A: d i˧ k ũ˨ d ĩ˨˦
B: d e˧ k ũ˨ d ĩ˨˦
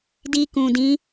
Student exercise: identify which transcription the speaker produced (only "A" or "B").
A